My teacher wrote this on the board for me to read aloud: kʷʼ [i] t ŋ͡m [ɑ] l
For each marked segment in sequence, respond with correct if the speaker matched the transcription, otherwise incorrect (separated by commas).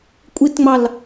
correct, correct